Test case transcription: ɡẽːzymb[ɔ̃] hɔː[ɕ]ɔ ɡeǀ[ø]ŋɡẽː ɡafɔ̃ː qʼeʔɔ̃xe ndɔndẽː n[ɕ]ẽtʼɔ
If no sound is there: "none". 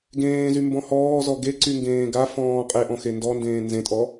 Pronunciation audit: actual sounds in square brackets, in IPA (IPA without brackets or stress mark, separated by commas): ɔ̃, z, y, z